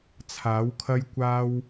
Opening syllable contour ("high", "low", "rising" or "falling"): rising